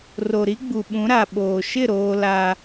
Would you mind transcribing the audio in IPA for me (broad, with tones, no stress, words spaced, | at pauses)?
ro˨ ɾi˦ɡ͡bu˨ɓũ˨˦ ɾa˨ ɓoː˨ ʃɪ˦˨ ɾoː˦la˦